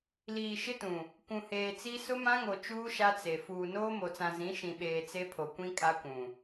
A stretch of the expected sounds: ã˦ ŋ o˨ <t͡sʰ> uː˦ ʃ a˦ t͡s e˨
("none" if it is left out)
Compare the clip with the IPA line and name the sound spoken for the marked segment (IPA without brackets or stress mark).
t͡ʃ